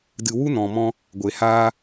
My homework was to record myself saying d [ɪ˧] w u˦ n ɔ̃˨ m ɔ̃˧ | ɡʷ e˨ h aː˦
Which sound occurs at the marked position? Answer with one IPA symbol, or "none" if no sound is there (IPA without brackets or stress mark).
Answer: ɨ˧